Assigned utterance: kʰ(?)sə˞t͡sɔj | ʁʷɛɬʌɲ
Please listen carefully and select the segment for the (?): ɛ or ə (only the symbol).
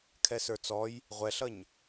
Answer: ɛ